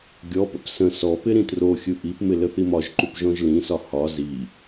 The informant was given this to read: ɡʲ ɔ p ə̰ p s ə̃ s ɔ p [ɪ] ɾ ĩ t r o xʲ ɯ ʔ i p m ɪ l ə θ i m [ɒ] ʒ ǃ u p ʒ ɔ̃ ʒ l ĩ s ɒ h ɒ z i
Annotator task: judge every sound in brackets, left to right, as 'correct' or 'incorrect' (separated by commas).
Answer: correct, correct